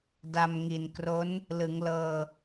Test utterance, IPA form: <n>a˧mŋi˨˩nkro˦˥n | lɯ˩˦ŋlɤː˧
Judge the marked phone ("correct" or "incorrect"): incorrect